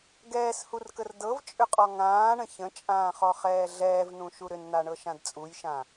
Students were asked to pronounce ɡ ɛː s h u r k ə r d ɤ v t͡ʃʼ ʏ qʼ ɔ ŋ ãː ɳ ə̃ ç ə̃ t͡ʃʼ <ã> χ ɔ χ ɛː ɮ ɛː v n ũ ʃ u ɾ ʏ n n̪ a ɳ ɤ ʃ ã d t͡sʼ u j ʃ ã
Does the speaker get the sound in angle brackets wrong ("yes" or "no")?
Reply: yes